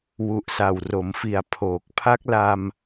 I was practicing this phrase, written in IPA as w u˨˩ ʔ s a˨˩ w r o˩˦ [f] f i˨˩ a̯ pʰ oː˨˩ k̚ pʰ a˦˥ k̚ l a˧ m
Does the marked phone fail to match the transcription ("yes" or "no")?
yes